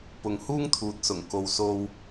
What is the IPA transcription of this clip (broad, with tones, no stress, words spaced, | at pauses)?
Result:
pʊ˨ŋ huː˥ŋt̪ʰuː˨t̚sʊ˨˩ŋ ko˨wso˧w